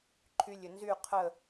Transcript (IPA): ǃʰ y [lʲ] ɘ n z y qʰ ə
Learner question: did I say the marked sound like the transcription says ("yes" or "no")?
yes